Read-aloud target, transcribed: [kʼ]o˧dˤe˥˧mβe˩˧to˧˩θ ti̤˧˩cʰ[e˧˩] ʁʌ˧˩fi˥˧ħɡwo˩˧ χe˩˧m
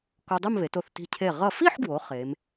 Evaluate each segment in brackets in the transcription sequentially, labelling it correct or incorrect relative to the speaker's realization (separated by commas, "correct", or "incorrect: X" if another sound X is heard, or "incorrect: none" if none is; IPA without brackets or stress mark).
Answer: incorrect: k, correct